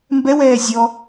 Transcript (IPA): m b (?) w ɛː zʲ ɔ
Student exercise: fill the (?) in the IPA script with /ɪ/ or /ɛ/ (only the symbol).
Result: ɛ